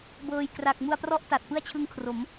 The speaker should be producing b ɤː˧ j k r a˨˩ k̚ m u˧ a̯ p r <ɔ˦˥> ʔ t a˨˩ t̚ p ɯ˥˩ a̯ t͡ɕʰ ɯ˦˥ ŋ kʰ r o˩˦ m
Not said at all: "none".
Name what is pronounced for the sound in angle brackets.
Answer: ɔ˦˥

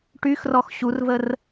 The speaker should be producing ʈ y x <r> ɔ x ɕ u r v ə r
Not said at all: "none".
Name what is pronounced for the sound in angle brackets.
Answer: r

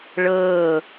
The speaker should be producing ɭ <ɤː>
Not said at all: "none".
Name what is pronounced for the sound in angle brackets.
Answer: ɤː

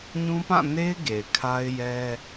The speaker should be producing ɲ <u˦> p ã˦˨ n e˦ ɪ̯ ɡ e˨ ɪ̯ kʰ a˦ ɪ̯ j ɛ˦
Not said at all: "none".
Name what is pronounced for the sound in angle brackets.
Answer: ũ˦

